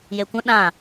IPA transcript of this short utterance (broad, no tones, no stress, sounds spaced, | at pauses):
j e kʷ ə̃ ɗ ã